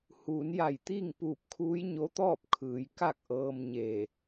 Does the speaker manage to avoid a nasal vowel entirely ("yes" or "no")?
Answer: yes